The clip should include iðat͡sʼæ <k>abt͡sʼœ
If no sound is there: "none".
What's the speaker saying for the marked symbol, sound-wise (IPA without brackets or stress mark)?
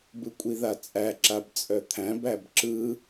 ǁ